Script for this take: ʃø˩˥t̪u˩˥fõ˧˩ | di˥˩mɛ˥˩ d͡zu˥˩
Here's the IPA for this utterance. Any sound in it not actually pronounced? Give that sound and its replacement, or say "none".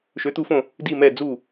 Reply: none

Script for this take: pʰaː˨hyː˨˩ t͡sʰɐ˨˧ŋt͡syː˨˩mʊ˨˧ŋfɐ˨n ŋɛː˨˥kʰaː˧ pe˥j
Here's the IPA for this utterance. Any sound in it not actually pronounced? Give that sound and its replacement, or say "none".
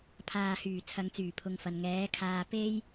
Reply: m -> pʰ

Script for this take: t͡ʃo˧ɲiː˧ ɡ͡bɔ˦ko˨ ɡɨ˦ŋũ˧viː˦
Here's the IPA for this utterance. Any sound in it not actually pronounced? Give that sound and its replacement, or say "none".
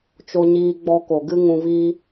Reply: none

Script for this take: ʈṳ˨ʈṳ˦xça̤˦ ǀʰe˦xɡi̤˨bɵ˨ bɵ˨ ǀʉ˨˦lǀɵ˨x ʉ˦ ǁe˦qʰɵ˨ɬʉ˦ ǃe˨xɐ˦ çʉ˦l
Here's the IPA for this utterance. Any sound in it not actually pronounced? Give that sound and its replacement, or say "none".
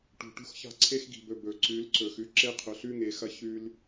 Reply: ǃ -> ŋ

